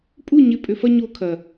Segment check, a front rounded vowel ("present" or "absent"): present